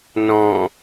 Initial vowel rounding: rounded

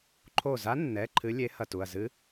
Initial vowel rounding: rounded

